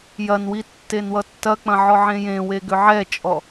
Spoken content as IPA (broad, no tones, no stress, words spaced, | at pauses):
jɐnwi tːenwʌtːɐk͡pɐ̃ ʕɔʕẽjẽwe ɡʏʕɛt͡ʃʼɔ